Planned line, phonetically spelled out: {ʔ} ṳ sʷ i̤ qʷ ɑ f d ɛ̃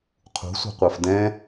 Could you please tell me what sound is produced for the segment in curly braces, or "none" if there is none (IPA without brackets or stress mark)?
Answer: qʰ